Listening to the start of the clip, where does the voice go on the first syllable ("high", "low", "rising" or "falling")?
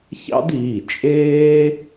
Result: high